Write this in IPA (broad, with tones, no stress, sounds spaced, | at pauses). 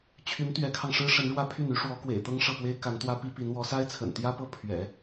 t͡ɕʰ y˧˥ n t̪ ɥ ɛ˧˥ kʰ ɑ˧ ŋ ʂ ɻ̩˥ ʂ ə˧˥ n ɻ w ä˥˧ pʰ y˥˩ n y˥ ʂ w ɔ˧˥ k w ḛ˨˩ ɪ̯ t̪ ɤ˥ ŋ ʂ ɤ˥˩ p w e˥ ɪ̯ k a˧˥ n t̪ w ä˥ p i˥ p i˧˥ n w ɔ˧˥ s a˥ ɪ̯ t͡sʰ ə̰˨˩ n t̪ j ä˥ p ɤ˥˩ pʰ ɥ ɛ̰˨˩˦